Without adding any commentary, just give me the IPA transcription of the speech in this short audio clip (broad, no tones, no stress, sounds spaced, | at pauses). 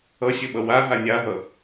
ʌ sʲ ə ɓ ʌ w a ɦ a nʲ a ɦ ʌ